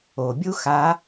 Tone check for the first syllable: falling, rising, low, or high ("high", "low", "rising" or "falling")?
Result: low